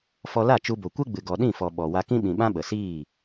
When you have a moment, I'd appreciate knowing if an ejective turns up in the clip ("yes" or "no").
no